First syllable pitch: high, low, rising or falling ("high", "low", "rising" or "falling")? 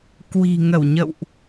low